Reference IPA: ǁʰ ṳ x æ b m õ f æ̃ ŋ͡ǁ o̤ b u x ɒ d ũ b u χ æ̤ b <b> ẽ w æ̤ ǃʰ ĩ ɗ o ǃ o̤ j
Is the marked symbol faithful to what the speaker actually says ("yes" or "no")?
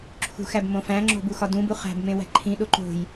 no